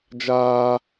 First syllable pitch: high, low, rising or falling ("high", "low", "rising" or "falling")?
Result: high